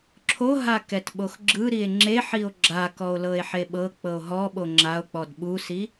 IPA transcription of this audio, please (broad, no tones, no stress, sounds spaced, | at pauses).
ǁʰ o ɦ a k ɛ t ɓ o x ɡ͡ǁ ɯ ɾ i e̯ ŋ͡ǁ e ħ i o̯ ɡ͡ǁ a k ɔ o̯ l ɤ e̯ ħ e ɓ ɤ k͡p ɤ o̯ ɦ ɔ ɓ o ŋ͡ǁ a o̯ k͡p ɔ d ɓ u s i